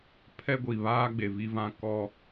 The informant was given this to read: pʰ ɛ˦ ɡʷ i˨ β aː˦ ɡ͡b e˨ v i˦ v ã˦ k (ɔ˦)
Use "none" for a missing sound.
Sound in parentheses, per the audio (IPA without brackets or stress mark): ɔ˦